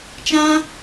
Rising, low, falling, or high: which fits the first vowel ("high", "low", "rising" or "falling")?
high